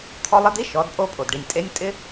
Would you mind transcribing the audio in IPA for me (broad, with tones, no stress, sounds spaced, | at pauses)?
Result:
t̪ʰ ɔ˧ lˠ ɪ˧˥ d̪ i˧˥ ʃ ɔ˩˧ d pʼ o˧ pʼ o˩ d ɖ i˩ nʲ tʼ e˧˥ nʲ tʼ ɪ˥